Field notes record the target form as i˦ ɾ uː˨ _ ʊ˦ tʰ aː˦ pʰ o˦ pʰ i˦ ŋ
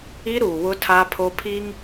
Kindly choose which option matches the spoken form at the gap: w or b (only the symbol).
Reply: w